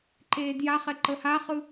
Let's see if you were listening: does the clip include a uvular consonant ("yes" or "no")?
yes